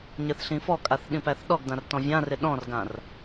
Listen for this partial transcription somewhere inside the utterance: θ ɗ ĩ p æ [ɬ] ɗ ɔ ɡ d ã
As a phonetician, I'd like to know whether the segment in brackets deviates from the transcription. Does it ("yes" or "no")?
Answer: yes